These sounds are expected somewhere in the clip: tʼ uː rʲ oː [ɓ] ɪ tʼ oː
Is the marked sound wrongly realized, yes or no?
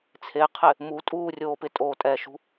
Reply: yes